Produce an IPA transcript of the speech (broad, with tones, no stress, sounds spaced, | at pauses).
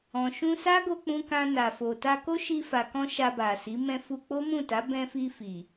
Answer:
ɔ̃˨ ʃ ũ˧ s a˦ ɡ o˧ k͡p ũ˧ k ã˧ n a˨ f o˨ t a˧ k o˦ ʃ i˧ f a˨ k ɔ̃˧ ʃ a˧ b a˨ s i˨˦ m ɛ̃˧ f u˧ k͡p o˦ m ũ˦˨ t a˨˦ b ɛ̃˧ f i˧ f i˨